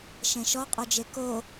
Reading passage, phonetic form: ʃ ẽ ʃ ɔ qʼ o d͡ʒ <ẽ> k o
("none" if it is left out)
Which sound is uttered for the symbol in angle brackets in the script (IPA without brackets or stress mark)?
e